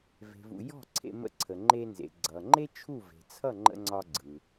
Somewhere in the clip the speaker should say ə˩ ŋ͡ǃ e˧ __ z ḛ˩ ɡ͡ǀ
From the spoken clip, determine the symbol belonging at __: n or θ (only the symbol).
n